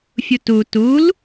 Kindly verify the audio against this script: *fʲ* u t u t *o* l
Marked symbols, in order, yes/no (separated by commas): yes, no